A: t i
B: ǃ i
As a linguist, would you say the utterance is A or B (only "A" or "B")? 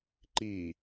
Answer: B